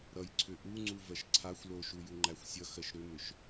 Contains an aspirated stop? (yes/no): yes